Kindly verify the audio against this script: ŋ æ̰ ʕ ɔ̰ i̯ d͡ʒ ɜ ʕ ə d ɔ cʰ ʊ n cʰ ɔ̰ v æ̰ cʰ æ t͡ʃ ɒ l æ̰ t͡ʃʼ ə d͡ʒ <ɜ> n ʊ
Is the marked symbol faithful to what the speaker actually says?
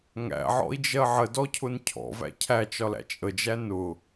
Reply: no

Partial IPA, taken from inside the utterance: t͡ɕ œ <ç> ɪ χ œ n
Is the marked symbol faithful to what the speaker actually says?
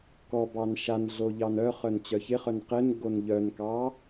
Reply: yes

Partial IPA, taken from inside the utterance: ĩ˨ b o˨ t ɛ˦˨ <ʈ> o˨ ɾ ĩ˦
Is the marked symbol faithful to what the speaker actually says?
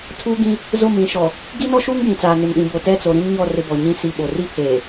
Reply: no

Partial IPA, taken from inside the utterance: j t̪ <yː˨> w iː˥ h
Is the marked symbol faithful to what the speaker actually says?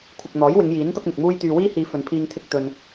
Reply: yes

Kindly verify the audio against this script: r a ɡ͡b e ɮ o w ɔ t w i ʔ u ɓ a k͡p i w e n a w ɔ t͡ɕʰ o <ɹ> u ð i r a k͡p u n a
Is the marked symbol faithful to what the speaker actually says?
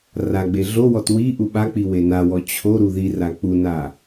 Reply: no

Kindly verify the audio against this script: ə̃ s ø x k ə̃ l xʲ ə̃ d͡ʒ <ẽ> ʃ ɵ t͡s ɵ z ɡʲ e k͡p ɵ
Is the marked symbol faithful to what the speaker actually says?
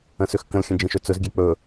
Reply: yes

